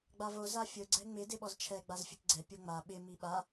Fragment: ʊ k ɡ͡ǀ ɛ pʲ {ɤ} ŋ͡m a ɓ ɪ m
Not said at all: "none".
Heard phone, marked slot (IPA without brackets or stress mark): o